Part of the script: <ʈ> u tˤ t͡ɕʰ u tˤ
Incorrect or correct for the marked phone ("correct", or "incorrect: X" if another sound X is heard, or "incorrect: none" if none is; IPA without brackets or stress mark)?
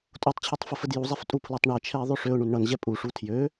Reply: incorrect: tʼ